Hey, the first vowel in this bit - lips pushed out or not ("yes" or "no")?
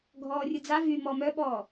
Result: yes